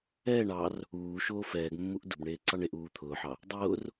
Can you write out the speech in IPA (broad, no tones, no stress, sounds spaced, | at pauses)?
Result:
ɛː ɳ ɑ r | uː ʃ oː f ɛː ɡ mː u ʔ d ʊ b ɳ eː ǀ ɑ ɳ e ʔ uː t̪ʰ ʊː ħ ɑ | dˤ ʊː r